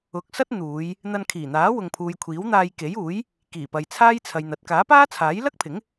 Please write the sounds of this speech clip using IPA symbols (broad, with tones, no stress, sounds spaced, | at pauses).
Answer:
ʊ˨˥ k̚ s ɐ˥ t̚ n̪ uː˨˧ j | n̪ ɐ˧ n kʰ iː˨˩ n̪ aː˨˥ w ʊ˨ ŋ pʰ uː˨ j kʷʰ iː˨˥ w n̪ aː˧ j k e˨˥ j uː˨˥ j | k iː˨˩ p ɐ˨ j t͡sʰ aː˥ j t͡sʰ ɐ˨ j n̪ ɐ˨˥ t̚ k aː˨˥ p aː˥ t͡sʰ aː˨˥ j l ɐ˥ k̚ pʰ ɪ˨˥ ŋ